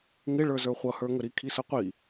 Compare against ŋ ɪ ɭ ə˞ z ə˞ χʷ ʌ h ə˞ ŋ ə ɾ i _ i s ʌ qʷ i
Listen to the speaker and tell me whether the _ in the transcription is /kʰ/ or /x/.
kʰ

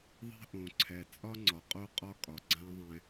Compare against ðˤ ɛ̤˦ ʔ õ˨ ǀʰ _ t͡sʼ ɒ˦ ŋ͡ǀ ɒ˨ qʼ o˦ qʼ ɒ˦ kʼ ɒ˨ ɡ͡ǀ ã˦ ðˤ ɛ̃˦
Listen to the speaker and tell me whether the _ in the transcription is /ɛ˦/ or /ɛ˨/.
ɛ˨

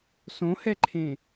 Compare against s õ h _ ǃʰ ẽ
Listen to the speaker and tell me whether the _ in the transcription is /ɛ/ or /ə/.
ɛ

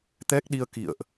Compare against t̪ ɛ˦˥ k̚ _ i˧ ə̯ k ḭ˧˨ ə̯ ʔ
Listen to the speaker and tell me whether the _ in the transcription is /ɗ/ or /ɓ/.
ɗ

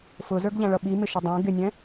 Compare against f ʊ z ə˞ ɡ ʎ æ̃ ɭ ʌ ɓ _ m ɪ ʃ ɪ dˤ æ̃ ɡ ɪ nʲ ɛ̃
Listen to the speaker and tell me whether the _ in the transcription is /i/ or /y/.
i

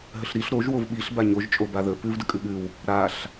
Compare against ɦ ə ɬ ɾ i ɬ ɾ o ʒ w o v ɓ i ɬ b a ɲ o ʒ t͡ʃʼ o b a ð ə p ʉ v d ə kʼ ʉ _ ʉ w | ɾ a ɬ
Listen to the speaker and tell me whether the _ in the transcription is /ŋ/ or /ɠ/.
ɠ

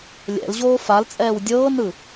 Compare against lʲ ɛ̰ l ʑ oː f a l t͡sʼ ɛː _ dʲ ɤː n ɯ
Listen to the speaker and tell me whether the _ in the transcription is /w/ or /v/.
w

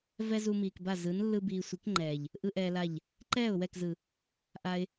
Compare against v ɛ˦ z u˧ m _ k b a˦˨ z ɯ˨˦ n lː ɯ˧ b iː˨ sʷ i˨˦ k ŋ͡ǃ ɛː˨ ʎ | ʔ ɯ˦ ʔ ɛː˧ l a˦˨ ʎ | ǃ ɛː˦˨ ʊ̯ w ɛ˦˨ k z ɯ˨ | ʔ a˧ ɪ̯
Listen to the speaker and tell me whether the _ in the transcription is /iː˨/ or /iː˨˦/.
iː˨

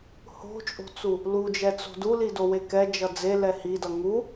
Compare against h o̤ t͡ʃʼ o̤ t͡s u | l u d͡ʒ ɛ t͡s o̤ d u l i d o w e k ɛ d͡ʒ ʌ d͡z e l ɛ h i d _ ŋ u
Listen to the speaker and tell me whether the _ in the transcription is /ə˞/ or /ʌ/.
ʌ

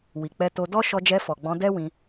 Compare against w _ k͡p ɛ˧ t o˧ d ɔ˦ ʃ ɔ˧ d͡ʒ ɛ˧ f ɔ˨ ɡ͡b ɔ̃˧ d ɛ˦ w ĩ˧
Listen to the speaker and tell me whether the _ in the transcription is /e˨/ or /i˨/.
i˨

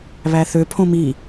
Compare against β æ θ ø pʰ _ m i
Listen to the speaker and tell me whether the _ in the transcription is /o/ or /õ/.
õ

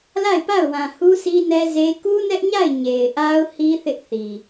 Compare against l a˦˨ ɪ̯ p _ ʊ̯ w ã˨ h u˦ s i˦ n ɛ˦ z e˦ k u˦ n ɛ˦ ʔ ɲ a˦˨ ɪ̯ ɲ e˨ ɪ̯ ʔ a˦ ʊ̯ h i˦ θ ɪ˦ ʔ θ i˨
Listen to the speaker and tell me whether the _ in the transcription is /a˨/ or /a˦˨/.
a˦˨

